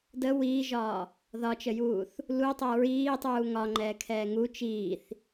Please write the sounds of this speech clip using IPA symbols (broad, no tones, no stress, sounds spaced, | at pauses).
d ə w iː ʒ ɒː | ð ɒ t͡ʃ ə j uː θ | l u tˤ ɛ ɹ iː tˤ uː ŋ ɒ ŋ͡ǃ ɛː kʰ ɛː ŋ u t͡ʃ iː θ